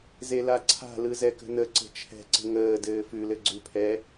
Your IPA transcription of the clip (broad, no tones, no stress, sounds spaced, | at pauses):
z e l a ǀʰ a̤ l ɯ z ɛ k ə̤ n ə ǀ ə̤ t͡ʃʰ ɛ̤ ǀ ə̤ ŋ əː d ɘː f ʉ l ɘ ɡ͡ǀ ʉ pʰ ɛ